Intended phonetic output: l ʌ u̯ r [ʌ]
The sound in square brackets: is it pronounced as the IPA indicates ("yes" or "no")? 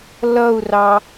no